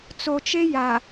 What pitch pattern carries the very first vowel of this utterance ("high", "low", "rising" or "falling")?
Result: low